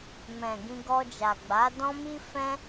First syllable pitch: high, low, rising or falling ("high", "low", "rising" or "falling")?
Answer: low